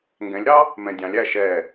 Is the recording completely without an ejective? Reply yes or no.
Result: yes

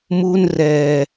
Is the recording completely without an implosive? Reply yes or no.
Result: yes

